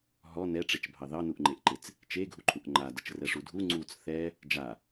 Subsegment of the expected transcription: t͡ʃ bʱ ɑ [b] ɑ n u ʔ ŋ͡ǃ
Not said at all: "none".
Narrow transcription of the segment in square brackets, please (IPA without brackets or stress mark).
ð